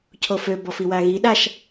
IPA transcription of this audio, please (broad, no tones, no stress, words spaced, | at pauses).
cʰofø bɔfiwaɣi ɗaʃ